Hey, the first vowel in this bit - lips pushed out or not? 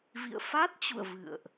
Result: no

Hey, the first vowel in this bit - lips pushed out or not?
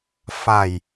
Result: no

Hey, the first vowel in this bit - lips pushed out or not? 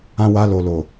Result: no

